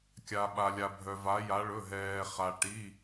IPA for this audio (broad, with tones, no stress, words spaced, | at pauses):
kʲa˩ɓa˩lʲa˩bʱœ˩ va˩˧ja˩˧ɭɵ˩˧˩ɦɛː˩ χa˩ʈi˩˧˩